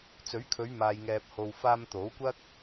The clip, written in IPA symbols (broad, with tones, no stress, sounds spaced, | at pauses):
t͡s ɵ˨˥ ɥ kʰ ɵ˨˧ ɥ m aː˨ j ŋ ɛː˨ p̚ h o˨ w f aː˧ m t̪ o˨˥ w kʷ ɐ˥ k̚